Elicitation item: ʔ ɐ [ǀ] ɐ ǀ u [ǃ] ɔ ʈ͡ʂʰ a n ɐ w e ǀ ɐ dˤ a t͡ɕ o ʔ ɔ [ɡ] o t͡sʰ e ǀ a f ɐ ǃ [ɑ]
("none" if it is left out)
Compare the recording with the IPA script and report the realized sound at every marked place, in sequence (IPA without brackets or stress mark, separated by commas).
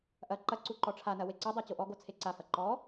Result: ǃ, ǃ, ɡ, ɔ